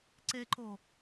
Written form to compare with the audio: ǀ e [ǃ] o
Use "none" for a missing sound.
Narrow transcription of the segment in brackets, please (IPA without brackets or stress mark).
ǃ